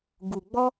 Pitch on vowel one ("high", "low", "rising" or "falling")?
low